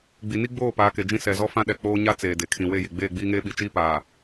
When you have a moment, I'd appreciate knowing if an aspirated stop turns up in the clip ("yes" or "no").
yes